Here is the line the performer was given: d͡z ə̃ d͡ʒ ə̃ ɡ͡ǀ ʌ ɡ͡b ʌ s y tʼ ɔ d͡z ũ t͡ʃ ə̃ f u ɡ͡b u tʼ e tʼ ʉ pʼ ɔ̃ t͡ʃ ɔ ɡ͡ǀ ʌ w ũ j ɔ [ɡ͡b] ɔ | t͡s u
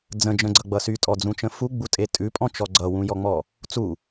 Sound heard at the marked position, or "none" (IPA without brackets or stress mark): ŋ͡m